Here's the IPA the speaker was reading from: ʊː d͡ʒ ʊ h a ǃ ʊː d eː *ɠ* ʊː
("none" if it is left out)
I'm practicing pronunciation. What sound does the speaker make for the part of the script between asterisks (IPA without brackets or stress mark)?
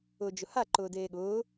ɠ